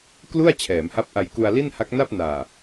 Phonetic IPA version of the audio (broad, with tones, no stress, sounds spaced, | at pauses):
k l u˥˩ a̯ t͡ɕʰ ɛː˩˦ m h a˦˥ p̚ ʔ a˧ j k u˧ a̯ l i˥˩ n h a˦˥ k̚ n a˥˩ p̚ n aː˨˩